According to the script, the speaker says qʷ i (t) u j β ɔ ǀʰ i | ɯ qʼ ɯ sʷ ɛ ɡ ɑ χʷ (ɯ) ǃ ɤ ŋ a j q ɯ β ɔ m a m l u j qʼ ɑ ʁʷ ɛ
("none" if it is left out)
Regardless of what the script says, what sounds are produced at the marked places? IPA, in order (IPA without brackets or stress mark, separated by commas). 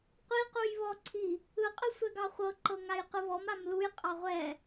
q, ɤ